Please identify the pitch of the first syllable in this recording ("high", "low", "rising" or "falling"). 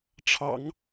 low